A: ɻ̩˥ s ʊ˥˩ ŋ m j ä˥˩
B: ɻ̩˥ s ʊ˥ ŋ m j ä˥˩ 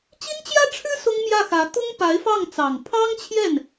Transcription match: B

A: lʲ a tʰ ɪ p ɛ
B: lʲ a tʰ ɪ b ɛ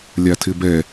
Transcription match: B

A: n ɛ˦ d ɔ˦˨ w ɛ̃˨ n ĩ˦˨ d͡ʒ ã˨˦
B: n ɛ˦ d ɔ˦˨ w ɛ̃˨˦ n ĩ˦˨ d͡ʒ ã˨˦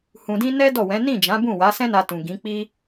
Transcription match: B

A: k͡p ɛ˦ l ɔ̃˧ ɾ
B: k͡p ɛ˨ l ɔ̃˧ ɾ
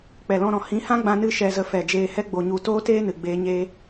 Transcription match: B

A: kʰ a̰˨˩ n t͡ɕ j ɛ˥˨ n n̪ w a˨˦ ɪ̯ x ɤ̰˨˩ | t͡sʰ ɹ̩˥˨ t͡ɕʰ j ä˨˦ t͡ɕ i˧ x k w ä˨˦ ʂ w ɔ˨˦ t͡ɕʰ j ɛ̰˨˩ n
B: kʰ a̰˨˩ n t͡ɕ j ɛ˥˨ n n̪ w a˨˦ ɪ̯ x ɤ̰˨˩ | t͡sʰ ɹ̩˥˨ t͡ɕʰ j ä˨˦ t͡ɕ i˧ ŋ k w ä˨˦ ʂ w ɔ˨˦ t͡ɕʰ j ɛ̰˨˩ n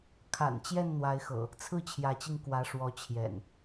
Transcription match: B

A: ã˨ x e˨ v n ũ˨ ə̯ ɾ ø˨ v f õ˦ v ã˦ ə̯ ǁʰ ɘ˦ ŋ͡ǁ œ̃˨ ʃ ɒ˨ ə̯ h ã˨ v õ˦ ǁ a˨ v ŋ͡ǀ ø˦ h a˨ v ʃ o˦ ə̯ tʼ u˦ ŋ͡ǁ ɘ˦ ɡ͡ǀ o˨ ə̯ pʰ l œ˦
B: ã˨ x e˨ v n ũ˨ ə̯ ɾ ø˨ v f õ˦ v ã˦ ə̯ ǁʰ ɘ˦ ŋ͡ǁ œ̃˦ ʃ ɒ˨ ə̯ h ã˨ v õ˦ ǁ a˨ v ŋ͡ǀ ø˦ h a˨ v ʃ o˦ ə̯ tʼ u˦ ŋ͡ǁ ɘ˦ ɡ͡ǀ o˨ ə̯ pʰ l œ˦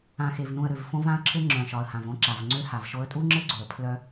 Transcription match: A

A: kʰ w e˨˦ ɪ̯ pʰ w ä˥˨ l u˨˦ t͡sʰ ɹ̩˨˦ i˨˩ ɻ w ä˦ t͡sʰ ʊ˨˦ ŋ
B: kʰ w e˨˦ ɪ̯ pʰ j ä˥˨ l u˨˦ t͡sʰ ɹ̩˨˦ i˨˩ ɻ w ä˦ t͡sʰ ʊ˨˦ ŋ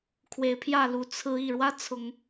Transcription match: B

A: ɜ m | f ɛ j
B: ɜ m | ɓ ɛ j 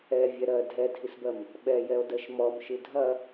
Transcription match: B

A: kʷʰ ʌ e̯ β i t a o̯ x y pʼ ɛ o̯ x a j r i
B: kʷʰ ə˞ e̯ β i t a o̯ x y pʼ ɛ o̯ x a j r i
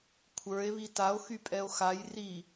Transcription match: B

